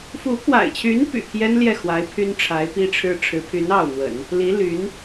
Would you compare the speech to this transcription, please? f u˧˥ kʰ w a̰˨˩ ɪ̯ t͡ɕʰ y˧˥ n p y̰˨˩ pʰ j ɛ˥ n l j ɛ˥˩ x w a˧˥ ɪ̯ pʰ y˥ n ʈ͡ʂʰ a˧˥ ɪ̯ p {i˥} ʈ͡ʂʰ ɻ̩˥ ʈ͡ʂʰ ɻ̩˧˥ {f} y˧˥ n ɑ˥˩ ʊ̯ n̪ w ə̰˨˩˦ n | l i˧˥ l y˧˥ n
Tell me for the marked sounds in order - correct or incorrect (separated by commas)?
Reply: correct, incorrect